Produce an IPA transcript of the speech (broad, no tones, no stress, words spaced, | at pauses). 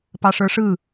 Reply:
pɑʂə˞ʂɯ